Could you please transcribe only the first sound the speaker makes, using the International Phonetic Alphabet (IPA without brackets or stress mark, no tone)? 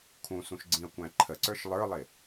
kʰ